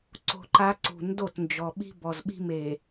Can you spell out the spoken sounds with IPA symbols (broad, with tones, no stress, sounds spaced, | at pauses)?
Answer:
ǀ o̤˦ ǃ a˦ ǀ ṳ˨ n d o˦˨ t n d͡ʒ ɔ˨ ɓ i̤˦ b ɔ˨ z ɓ i̤˦ m e˨